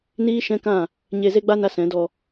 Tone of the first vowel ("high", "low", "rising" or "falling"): high